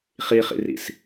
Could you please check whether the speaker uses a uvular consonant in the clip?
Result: yes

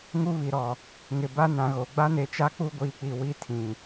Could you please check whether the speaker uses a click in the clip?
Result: no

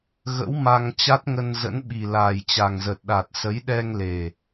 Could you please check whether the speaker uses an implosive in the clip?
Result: yes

